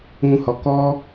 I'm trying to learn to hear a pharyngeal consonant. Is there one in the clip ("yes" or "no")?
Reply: no